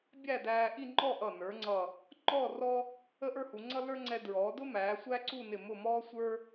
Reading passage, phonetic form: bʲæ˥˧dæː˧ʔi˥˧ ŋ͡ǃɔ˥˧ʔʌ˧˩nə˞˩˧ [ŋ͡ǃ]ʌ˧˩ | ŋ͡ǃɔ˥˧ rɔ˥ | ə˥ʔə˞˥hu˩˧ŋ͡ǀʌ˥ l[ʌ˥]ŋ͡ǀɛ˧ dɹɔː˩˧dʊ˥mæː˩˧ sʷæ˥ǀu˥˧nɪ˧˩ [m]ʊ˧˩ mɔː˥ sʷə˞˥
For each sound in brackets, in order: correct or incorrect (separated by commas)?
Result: incorrect, incorrect, correct